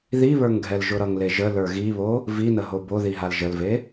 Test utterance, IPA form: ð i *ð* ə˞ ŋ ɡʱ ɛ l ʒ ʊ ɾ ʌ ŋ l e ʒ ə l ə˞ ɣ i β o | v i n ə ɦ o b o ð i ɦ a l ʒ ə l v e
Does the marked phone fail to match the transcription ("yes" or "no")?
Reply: yes